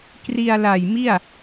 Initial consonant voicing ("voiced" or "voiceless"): voiceless